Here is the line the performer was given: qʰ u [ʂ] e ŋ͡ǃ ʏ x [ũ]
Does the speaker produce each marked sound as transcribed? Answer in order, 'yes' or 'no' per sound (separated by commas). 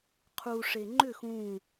yes, yes